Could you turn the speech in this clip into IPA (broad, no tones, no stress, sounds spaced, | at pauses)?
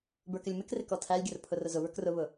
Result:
b ə˞ k ɪ lʲ m ɪ k r ɪ k ɔ tʰ æ lʲ ɡʲ ə r pʰ ʊ r ʊ z ʊ β ə˞ k r ʊ β ʊ